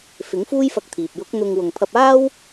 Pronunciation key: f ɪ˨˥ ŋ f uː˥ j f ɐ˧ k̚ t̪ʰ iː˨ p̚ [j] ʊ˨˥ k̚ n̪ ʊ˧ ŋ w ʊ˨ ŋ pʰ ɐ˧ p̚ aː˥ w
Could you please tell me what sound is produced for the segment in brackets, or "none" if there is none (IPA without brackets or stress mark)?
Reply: j